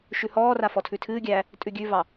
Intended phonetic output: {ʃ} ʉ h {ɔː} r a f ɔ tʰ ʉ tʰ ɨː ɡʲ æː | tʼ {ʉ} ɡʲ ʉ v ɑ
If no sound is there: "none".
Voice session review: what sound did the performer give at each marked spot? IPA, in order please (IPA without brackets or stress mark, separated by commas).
ʃ, ɔː, ʉ